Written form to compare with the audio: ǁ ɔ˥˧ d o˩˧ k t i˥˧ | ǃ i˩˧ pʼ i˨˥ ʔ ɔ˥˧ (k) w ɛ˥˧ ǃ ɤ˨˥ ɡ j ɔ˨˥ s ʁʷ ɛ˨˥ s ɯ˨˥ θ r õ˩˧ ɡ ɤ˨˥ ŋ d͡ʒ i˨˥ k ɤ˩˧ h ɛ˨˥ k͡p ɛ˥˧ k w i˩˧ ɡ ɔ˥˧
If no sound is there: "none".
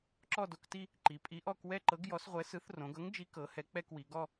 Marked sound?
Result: k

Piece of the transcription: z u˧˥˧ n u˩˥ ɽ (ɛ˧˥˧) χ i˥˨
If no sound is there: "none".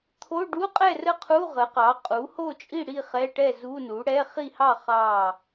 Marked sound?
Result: ɛ˧˥˧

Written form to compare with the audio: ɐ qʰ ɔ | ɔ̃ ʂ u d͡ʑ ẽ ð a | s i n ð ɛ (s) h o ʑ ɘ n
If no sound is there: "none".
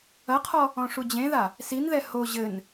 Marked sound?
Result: none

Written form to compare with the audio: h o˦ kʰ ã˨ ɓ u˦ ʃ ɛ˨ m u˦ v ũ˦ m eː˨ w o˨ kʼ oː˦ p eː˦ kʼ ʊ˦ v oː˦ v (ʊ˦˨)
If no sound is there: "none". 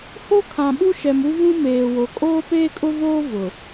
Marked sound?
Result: ʊ˨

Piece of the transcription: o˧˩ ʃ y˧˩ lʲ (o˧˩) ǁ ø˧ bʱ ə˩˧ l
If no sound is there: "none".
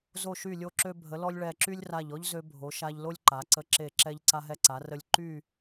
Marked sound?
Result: o˧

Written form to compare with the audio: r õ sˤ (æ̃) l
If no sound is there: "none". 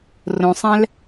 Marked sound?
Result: æ̃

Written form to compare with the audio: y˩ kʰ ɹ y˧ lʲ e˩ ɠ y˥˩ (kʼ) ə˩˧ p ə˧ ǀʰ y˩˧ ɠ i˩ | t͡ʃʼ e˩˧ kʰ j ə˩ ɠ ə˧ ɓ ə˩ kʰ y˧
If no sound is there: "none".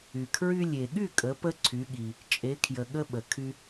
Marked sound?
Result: kʼ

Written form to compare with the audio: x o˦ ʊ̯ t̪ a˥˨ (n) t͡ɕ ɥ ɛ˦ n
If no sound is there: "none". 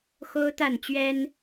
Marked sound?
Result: n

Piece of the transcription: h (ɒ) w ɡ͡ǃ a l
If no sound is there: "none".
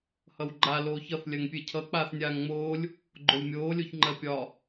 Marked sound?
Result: ʌ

